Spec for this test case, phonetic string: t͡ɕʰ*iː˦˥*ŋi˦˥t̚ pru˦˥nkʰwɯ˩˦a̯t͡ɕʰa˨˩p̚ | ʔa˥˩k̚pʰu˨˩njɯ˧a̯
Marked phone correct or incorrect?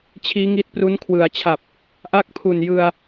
correct